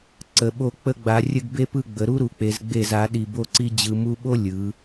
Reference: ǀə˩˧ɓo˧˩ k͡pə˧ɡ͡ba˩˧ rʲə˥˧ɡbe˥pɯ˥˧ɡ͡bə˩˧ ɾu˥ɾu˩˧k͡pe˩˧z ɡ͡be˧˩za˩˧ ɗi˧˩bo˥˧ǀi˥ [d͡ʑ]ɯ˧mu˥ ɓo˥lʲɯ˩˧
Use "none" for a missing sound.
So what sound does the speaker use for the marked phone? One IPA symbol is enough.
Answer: d͡ʑ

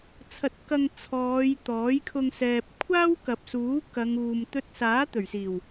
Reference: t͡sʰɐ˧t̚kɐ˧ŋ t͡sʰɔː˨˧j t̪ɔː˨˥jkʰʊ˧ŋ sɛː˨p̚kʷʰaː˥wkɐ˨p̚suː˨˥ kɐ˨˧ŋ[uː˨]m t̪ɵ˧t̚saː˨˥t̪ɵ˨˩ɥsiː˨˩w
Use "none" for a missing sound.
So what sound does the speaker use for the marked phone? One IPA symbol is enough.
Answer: uː˨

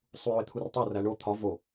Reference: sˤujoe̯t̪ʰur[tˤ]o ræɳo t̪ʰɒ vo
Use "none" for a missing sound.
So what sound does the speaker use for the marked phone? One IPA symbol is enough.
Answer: tˤ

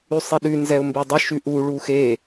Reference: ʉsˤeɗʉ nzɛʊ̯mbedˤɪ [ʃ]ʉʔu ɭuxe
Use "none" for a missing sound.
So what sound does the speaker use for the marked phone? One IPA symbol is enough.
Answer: ʃ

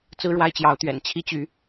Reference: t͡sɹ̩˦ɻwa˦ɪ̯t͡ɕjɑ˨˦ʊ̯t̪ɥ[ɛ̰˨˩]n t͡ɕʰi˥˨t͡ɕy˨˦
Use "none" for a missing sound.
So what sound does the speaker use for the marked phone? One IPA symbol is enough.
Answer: ɛ̰˨˩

